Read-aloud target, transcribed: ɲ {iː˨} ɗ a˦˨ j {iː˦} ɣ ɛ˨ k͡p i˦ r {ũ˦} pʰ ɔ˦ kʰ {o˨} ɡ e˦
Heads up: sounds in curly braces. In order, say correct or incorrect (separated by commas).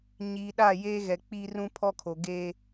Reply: correct, incorrect, correct, correct